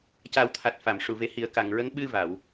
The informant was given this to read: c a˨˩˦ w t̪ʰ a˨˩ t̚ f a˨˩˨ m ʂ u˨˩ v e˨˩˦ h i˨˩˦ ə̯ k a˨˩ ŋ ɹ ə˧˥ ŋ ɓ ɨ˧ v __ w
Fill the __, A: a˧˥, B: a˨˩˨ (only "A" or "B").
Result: B